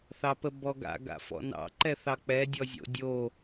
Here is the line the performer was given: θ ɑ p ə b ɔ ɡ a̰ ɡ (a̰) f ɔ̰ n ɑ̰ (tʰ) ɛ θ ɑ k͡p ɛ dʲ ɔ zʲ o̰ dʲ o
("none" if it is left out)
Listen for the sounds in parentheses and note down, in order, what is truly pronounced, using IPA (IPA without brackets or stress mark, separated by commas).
a̰, ǃ